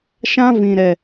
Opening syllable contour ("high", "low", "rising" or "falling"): high